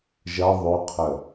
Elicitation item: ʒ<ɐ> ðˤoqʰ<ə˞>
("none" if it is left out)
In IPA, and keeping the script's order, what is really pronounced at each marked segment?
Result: ɐ, ə

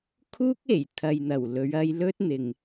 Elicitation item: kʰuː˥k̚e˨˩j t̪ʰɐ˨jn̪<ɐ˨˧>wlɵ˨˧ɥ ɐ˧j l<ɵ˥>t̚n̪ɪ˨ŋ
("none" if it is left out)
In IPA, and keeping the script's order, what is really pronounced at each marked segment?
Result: ɐ˨˩, ɵ˥

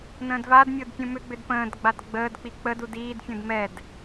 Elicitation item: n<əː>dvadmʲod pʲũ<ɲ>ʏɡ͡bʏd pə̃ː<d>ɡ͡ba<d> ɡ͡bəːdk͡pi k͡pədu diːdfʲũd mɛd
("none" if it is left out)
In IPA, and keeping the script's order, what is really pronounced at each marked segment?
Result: ə̃ː, m, d, d

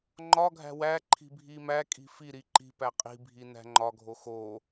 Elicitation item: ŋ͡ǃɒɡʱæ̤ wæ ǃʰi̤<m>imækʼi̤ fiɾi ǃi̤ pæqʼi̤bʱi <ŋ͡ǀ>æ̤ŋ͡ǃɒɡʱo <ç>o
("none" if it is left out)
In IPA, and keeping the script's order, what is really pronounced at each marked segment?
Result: bʱ, n, x

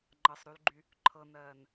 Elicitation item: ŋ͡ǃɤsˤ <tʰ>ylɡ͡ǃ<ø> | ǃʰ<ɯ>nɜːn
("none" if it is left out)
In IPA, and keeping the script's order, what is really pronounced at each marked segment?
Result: ɾ, y, ɤ

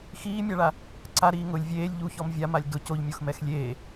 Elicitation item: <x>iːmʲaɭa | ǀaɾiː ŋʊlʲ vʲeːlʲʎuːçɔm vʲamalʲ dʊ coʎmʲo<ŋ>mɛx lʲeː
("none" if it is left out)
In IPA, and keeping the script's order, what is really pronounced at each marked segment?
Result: x, x

